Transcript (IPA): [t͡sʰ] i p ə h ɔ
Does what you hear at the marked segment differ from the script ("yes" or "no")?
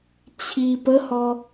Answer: yes